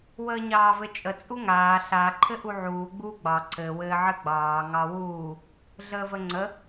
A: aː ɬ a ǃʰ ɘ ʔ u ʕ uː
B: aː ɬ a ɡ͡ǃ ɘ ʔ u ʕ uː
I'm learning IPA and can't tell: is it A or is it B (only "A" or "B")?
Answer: A